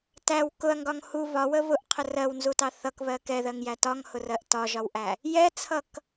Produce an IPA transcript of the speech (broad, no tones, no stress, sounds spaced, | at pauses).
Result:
t æ w k ʊ ɐ̯ ŋ ɡ ɒ ŋ h u β ɒ w ə β ʊ ʔ qʰ ə r ɜ w n z u t ɑ θ ʌ k β ɜ k ɛ ð ɜ ŋ j æ t ɒ ŋ h ʊ r ɜ ʔ t ɒ ʒ ɒ w ʔ æ | j ɛ t͡sʰ ʌ k